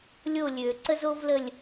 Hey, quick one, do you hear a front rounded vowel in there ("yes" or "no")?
yes